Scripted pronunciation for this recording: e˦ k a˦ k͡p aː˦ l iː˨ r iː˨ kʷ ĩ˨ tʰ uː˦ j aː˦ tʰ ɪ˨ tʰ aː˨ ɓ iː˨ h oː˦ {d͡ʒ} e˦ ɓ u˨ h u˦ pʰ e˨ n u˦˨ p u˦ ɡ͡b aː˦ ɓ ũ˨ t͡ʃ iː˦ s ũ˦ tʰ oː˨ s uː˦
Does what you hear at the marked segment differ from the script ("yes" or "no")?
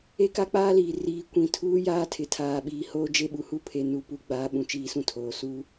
no